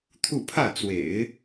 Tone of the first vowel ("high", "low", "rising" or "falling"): falling